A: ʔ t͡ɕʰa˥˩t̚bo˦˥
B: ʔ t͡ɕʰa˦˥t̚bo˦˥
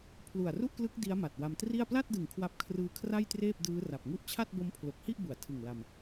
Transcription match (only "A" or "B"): A